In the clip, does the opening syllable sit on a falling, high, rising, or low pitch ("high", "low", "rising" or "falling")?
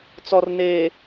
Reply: low